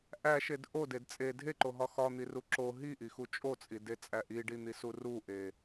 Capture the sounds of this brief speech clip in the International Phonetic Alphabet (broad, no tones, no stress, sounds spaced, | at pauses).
ʔ æ ʃ e d ʔ o d e d t͡sʼ e dʱ e ǃ o ɦ ɒ x ɒ n̪ i r u ǁ o ɦ i ʔ i x u t͡ʃʼ o t͡sʼ i d e t͡sʼ æ ʔ i ɖ i n̪ i s u r u ʔ e